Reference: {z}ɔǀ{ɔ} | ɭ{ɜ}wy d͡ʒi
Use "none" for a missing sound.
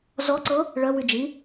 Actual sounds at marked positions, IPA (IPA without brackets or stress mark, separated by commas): z, ɤ, ɜ